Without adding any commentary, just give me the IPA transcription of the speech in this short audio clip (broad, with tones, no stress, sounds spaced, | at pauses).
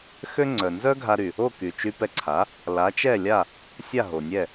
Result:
x ø˥ ŋ͡ǀ œ˩ n z œ˥ ɡʱ a˧ ɾ y˩ | o˥˩ k y˩ t͡ʃ y˧ p ɛ˧ ǀʰ a˩˥ | l a˩˥ t͡ʃ ɛ˥˩ lʲ a˥˩ | sʲ a˥˩ ɦ o˩ nʲ ɛ˥˩